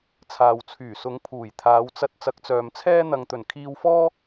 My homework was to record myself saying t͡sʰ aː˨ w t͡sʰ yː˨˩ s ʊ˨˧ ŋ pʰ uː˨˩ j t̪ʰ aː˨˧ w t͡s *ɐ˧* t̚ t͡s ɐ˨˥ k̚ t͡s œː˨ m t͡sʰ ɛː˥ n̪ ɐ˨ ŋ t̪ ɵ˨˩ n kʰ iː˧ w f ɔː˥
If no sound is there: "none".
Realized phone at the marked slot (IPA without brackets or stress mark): ɐ˧